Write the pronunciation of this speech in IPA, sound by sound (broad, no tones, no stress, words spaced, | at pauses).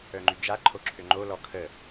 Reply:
œŋ͡ǃyd͡ʒa ǃʰoǁʰøŋ͡ǃo lɔkʰə